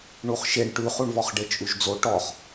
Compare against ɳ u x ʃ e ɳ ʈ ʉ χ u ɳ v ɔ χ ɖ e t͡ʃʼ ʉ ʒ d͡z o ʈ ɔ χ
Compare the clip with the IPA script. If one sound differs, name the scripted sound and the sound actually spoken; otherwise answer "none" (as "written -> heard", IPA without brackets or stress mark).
x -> χ